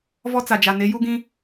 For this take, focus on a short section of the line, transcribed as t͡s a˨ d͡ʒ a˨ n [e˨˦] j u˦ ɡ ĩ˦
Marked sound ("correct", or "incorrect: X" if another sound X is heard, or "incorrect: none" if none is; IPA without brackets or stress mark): correct